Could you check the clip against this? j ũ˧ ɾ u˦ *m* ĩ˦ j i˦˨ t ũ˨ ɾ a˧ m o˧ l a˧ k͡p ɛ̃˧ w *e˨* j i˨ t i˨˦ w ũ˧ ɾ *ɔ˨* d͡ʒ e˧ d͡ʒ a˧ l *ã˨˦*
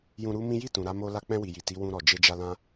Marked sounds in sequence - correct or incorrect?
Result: correct, incorrect: i˨, correct, incorrect: ã˦

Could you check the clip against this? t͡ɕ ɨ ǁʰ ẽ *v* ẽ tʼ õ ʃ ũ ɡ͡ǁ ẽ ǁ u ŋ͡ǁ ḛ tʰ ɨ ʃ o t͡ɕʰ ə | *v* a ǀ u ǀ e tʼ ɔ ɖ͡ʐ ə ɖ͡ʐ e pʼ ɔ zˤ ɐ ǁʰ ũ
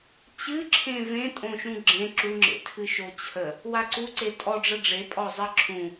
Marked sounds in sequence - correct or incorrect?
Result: correct, incorrect: w

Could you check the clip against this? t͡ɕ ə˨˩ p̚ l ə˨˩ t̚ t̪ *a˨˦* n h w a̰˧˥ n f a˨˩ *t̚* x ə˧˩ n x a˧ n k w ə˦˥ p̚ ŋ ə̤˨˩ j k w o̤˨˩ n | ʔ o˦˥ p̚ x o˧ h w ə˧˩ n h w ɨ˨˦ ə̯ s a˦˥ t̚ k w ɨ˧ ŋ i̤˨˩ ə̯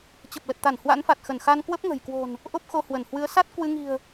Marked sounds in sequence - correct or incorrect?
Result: incorrect: a˧˩, correct

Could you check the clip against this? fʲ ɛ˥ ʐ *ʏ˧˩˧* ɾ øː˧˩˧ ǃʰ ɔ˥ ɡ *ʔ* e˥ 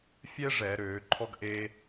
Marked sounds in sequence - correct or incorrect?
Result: incorrect: ɛ˧˩˧, correct

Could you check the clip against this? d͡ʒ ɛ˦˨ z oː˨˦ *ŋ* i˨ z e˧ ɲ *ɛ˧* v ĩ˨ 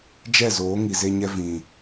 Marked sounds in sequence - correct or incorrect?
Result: correct, correct

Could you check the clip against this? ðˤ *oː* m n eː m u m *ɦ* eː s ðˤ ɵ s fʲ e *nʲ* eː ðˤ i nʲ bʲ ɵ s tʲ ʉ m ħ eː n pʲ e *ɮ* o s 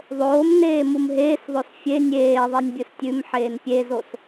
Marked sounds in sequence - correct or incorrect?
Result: correct, correct, correct, incorrect: z

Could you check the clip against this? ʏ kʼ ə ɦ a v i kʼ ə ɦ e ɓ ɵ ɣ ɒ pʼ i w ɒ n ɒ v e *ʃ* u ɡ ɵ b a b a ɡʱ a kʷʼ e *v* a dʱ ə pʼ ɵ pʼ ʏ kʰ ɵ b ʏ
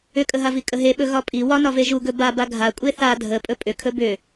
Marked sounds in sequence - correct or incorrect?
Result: incorrect: ʒ, incorrect: θ

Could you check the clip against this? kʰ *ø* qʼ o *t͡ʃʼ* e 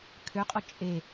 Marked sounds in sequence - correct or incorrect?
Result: correct, correct

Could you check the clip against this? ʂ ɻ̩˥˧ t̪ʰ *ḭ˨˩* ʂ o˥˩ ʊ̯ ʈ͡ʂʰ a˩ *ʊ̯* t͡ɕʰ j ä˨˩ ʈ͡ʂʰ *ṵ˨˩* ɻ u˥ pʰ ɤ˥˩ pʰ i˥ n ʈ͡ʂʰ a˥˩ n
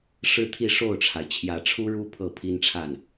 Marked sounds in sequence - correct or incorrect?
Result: incorrect: i˥˧, incorrect: ɪ̯, incorrect: u˥

